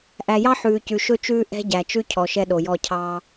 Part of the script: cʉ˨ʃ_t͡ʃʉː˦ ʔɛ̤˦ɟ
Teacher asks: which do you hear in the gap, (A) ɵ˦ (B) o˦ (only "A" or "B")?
A